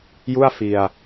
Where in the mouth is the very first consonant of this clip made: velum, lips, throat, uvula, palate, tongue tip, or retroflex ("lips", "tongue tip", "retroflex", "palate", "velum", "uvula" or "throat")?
palate